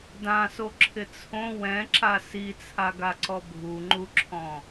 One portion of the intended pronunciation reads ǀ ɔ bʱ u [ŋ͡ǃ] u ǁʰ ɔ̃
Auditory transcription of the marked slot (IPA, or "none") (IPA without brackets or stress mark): ŋ͡ǃ